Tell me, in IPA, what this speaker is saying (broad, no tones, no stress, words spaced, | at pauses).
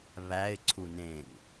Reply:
βæɪ̯ ǀʰunẽŋ